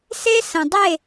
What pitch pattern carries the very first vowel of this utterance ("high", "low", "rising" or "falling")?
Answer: high